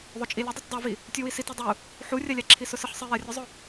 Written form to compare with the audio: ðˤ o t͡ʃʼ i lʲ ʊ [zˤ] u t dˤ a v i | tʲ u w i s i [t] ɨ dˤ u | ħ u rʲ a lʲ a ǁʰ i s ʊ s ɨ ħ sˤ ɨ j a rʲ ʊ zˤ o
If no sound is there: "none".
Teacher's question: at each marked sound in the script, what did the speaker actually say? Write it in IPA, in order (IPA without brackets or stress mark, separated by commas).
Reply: dˤ, t